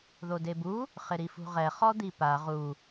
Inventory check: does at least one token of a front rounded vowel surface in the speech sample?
no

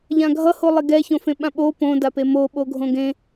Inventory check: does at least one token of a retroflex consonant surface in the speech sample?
no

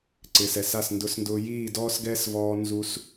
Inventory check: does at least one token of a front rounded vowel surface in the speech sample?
no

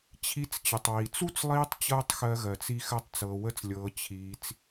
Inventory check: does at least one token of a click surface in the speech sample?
no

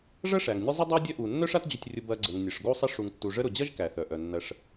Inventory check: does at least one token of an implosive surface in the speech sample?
no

